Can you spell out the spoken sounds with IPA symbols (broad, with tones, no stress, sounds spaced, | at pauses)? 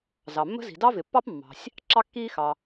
z ɑ˩ mː ə̤˥ z i̤˩ d ɑ˥ v ɪ˩ pː ɑ˥ p mː ɑ̤˩ sʲ | ǁ ɑ˥ kː iː˥ x ɑ˩